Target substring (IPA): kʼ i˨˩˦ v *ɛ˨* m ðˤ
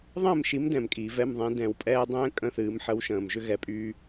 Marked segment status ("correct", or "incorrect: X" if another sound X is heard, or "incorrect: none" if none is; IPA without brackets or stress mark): incorrect: ɛ˧˥˧